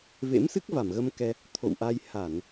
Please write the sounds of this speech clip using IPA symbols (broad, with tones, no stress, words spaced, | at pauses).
vḛ˧˥msɨ˦˥k̚ va˧˩mɣə˧mkɛ˧ | t̪ʰo̰˧˨wʔa˧j ha˧˩˨n